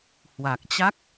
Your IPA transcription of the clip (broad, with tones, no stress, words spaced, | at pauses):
hwa˨˩k̚t͡ɕa˦˥k̚